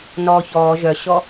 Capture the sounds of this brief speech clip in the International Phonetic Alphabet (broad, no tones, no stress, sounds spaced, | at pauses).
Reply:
n ɔː ç ɔː ʒ œ ɕ ɔ